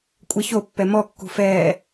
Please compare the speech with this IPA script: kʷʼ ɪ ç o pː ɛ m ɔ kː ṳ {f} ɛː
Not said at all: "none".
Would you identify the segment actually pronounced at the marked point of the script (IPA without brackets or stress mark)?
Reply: f